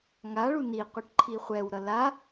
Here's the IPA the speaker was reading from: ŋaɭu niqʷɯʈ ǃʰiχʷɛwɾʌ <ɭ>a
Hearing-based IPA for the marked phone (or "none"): l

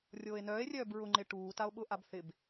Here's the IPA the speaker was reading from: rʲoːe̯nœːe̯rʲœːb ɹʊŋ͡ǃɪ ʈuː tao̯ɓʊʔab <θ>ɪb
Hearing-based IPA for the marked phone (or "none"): θ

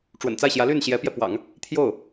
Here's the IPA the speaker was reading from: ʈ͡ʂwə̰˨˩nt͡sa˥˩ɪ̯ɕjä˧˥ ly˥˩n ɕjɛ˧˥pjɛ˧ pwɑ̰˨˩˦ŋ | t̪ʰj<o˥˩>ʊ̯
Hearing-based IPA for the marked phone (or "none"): o˥˩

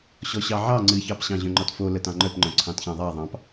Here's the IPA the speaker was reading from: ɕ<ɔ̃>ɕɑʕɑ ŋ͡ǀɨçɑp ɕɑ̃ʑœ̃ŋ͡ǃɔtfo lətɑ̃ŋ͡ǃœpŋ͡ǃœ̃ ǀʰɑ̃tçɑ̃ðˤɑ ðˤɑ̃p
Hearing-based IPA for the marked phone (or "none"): ɔ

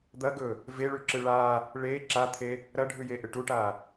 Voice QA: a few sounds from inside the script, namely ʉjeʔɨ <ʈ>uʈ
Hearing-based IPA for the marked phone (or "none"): ʈ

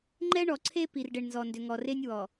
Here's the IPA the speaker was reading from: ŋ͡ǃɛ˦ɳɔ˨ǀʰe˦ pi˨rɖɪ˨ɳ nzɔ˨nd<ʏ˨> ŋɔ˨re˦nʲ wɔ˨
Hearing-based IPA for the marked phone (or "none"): ʏ˨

